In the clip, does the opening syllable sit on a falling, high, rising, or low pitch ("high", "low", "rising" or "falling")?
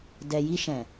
low